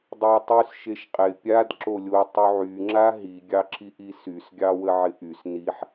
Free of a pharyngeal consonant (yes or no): no